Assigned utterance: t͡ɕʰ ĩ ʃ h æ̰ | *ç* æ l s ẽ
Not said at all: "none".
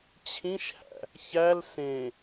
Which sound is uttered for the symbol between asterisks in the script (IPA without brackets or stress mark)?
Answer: ç